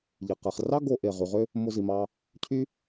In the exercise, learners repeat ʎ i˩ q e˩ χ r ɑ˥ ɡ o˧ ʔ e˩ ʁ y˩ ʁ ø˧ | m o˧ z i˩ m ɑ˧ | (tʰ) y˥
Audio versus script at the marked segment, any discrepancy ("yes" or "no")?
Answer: yes